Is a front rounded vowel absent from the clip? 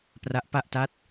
yes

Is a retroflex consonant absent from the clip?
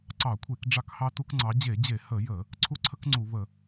no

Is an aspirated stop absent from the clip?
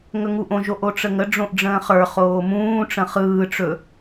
yes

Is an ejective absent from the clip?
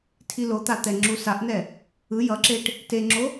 yes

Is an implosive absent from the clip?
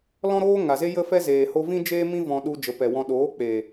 no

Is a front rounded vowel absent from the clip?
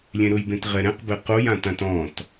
yes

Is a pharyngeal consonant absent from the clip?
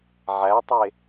no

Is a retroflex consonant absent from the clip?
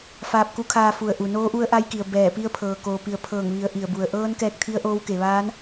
yes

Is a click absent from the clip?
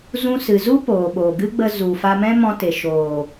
yes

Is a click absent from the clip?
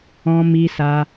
yes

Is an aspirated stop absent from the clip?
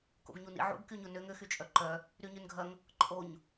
yes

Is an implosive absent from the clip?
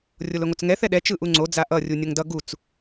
no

